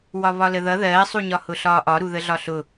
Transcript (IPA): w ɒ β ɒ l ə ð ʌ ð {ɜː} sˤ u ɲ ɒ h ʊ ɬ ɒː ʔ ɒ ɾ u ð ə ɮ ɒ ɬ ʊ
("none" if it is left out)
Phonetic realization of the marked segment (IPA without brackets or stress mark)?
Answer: ɜː